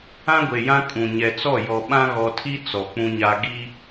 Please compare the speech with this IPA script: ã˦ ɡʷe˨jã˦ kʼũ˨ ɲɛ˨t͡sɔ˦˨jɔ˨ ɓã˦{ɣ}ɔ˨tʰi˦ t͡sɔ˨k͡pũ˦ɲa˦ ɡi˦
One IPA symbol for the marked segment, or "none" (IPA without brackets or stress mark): ɣ